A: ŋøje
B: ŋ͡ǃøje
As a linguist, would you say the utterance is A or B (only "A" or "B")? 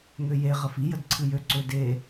A